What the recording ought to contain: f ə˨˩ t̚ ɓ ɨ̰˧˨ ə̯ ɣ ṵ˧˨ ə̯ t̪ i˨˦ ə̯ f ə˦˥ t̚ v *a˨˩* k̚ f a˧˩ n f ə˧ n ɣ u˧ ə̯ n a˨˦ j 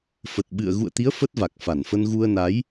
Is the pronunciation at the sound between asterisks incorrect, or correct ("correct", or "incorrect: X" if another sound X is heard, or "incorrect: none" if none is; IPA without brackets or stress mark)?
correct